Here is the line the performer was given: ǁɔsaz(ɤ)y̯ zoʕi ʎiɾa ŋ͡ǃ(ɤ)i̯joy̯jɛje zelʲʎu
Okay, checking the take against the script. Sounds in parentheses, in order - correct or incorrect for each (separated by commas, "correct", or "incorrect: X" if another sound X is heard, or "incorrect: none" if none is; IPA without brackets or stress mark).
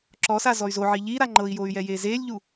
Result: incorrect: ɔ, correct